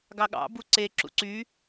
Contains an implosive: yes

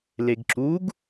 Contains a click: yes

